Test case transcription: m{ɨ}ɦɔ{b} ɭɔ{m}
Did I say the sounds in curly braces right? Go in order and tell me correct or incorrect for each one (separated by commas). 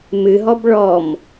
correct, correct, correct